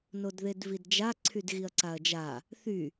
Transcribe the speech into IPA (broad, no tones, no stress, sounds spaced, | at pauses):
n o d ð e d v i d d͡ʒ a ǀʰ y d ɣ i ɐ̯ ǀ a ɐ̯ d͡ʒ a | θ y